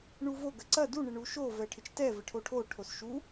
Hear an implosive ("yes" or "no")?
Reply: no